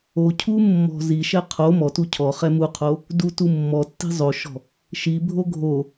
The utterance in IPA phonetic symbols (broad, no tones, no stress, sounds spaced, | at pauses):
o cʰ u mː ɔ̤ z i ʃ ɛ qʰ o m ɔ t u cʰ ɔ χ ɛ m u qʰ o | d u t u mː ɔ tː i̤ zˤ o ʃ ɔ̤ | ʃ i bʱ o ɡʱ o